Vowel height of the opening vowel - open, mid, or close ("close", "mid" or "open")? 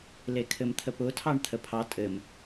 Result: mid